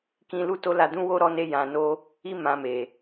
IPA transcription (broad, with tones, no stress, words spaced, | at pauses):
kĩ˧ lu˦to˦ la˧dũ˦wo˦ ɾɔ˦ ne˦jã˧no˦ | i˦ mã˧me˨